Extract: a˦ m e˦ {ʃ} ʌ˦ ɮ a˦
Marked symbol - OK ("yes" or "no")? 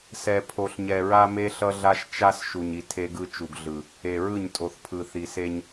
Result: no